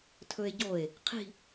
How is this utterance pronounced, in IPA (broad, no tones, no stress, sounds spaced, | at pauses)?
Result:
tʰ ɵ e̯ ɟ o e̯ | qʰ i̤